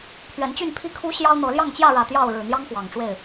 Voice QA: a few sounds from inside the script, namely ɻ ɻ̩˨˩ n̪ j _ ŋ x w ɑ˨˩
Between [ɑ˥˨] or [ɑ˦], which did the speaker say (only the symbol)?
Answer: ɑ˦